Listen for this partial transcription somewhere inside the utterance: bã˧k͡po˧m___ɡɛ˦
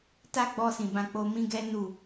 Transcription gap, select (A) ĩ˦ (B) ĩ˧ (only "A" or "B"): A